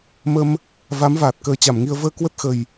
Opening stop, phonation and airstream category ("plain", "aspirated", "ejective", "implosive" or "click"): plain